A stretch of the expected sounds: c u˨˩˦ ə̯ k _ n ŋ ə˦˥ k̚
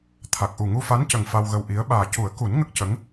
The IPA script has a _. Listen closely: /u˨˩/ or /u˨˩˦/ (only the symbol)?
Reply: u˨˩˦